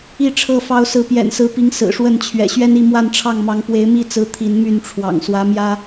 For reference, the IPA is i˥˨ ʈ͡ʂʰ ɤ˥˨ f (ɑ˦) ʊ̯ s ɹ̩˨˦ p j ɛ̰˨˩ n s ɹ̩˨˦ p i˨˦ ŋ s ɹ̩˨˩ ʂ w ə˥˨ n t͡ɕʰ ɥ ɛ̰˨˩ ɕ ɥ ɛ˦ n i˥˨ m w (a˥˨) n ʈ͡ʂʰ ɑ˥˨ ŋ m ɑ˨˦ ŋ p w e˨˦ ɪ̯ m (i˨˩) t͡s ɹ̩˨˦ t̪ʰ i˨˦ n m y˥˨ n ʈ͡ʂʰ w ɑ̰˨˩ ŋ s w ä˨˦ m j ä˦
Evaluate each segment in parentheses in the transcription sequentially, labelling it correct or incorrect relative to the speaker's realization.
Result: correct, correct, incorrect: i˥˨

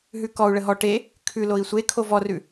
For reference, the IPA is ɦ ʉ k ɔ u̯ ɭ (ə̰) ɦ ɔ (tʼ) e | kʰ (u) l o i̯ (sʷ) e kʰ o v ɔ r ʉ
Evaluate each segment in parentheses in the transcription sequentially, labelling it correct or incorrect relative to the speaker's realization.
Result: incorrect: ə, incorrect: ʈ, incorrect: ʉ, correct

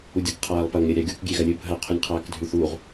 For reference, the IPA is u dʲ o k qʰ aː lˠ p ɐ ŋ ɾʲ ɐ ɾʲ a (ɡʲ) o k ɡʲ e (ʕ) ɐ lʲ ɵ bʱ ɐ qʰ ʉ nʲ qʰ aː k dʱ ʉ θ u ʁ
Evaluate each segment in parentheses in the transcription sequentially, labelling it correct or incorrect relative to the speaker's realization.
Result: correct, incorrect: ɣ

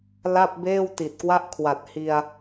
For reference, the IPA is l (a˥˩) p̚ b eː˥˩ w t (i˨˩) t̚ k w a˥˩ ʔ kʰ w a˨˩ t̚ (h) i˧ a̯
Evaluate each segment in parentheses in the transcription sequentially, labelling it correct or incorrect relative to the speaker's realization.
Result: correct, correct, correct

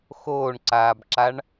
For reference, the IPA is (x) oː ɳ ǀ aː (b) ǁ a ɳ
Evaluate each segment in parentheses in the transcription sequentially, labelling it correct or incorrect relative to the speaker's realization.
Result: correct, correct

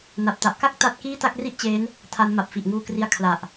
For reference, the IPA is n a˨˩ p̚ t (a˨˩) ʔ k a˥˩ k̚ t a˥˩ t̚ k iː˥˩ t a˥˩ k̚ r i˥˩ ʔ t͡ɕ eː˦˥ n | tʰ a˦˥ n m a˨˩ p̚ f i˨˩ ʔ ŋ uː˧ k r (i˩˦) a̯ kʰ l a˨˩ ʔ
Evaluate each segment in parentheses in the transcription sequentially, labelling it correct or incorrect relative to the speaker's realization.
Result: correct, incorrect: i˧

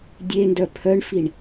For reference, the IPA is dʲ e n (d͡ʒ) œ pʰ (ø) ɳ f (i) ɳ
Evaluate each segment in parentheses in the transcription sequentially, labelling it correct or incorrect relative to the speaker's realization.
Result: incorrect: d, incorrect: œ, correct

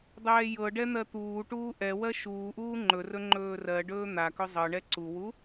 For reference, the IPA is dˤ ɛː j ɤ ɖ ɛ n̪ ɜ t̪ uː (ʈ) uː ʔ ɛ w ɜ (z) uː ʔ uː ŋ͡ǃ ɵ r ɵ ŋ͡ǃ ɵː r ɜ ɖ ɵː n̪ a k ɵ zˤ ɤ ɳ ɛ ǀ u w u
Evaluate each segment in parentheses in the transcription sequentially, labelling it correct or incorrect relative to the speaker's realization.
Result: correct, incorrect: ʃ

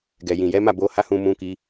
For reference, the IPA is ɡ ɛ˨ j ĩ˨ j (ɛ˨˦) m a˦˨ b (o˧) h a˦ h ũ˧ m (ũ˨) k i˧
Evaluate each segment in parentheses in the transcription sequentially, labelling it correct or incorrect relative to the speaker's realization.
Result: correct, correct, incorrect: ũ˧

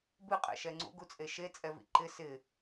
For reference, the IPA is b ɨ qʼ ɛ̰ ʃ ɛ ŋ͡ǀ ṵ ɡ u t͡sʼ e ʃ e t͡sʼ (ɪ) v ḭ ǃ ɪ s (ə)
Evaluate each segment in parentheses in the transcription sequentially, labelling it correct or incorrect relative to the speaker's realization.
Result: incorrect: ɛ, incorrect: ɪ

